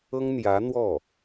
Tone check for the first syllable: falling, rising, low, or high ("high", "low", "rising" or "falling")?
high